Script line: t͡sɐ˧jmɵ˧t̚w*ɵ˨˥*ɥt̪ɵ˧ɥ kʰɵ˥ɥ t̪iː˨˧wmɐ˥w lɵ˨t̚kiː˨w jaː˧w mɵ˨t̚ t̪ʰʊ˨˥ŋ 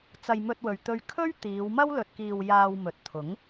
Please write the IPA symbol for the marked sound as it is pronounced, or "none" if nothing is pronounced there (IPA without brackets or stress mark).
ɵ˨